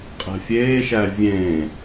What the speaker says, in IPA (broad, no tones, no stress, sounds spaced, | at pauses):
qʼ ɛ̤ fʲ eː ʃ æ vʲ ẽ